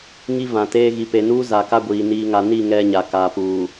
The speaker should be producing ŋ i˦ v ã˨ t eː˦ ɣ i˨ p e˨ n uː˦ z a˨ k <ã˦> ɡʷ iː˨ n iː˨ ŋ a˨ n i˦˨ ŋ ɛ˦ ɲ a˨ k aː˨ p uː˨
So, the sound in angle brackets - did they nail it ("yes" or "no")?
no